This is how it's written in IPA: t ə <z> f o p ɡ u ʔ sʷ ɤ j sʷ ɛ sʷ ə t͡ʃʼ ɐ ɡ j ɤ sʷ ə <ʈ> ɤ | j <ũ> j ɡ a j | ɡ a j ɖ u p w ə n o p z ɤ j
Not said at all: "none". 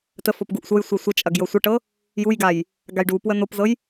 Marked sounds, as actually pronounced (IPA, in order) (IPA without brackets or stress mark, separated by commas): none, ʈ, u